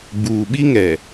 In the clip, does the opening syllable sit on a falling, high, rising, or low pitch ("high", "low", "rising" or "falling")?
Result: low